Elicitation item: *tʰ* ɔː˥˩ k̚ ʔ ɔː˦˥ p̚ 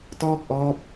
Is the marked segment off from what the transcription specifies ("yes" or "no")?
yes